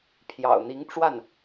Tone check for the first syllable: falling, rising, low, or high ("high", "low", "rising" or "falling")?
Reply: low